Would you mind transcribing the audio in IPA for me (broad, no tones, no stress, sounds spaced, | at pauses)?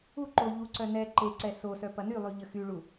u ǃ o ʎ u ǀ œ n ɛ ǃ e ǀ ɛ s o s œ p ɐ n y lˠ y ʎ ə x y ɭ u